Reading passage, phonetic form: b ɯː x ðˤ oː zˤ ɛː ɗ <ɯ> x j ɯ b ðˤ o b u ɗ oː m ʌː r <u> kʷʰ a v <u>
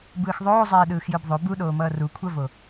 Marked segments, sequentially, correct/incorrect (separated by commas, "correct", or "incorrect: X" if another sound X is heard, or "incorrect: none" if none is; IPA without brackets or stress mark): incorrect: ɯː, correct, incorrect: o